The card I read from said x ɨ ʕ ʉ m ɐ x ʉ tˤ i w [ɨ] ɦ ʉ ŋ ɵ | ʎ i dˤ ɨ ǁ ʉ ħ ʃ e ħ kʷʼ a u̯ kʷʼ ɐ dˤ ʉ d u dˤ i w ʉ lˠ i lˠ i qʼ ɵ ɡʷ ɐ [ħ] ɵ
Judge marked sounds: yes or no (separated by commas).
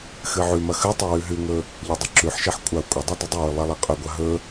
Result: no, no